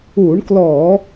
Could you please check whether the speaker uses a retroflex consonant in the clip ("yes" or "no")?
yes